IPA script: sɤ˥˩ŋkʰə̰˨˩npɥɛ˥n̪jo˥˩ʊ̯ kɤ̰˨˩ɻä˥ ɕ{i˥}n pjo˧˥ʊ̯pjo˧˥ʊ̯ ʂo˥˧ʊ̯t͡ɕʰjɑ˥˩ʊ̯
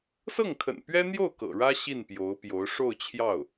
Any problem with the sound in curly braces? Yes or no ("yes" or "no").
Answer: yes